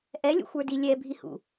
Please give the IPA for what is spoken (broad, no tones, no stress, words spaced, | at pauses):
ʔɛlʲṵxʷə˞di lʲɛbʱihṵ